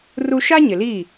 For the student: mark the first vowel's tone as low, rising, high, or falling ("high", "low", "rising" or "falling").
high